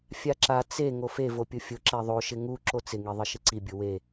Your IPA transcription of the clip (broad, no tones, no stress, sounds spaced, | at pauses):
fʲ a ǁ a t͡s e ŋ o f e v o pʲ ʊ fʲ ʊ ǁ ɛ ðˤ o ʃ ɪ ŋ u ǁ o t͡s ɪ ŋ i ðˤ ɪ ʃ ɪ ǀ i bʲ ʊ w e